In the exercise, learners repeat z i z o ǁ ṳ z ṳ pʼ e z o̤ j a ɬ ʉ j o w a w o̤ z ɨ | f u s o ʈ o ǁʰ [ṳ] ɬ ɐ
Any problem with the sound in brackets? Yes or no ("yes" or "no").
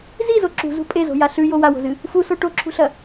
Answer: no